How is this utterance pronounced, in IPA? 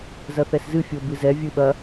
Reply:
z ɐ θ ɛ s z ɨ fʲ o b ɨ z ɛ vʲ ɨ ɓ ɐ

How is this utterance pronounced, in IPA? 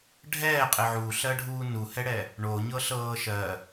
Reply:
ɖʱ ɛː qʼ ɪ ʕ u ɬ ɜ ɖʱ uː n u h ɛ ɽ ɛ | ɳ o ɲ ɤ ɬ ɤː ʃ ɜ

